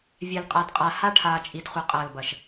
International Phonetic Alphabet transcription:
vʲ ɛ˨ l qʼ a˨ d qʼ a˨ h a˦ ʈʰ aː˨ t͡ʃʼ i˨ d χʷ ɐ˨ qʼ ɐː˨ l b ɐ˨ ʃ

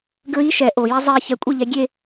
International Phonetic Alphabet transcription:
ɡ ɹ i ʃ ɛ ʔ o j ɛ zˤ e ç ɛ kʷʼ e ʎ ɛ ɡʲ e

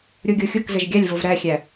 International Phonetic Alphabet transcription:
ɾʲ o ɡʲ o xʲ ʊ k z ə ʒ ɡʲ a lʲ v o v ɾ æ xʲ æ

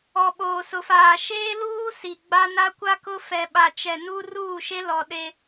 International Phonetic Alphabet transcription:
ɔ˨ ɓ oː˨ s ʊ˨ f aː˨ ʃ eː˦ l uː˦ s i˨ ɡ͡b a˦ n a˦ kʷ a˦ k ʊ˦ f ɛ˨ ɓ a˨ t͡ʃ ɛ˨ n u˦ r uː˦˨ ʃ e˦ l ɔ˨ ɗ e˦

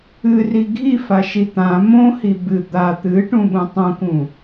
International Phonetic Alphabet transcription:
ɨ r i ɡʱ i f a ʃ i t̪ ã m õ h i b ɨ d̪ a t̪ ɨ ʈ ũ ɓ ũ tˤ ũ k ũ

